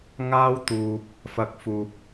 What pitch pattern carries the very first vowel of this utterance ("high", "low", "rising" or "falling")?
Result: high